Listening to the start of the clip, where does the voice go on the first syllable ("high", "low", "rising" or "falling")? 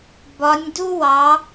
rising